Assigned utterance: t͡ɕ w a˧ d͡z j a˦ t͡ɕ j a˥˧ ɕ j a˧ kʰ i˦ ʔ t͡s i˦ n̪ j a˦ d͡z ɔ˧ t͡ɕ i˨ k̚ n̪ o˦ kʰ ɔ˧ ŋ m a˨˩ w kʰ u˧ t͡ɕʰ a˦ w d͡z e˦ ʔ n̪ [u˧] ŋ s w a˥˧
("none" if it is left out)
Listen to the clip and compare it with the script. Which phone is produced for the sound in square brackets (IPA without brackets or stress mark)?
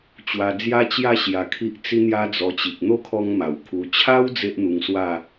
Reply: u˧